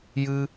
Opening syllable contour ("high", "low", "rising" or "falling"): high